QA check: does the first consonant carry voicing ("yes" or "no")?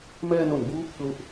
yes